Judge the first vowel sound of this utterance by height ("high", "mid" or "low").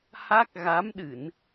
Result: low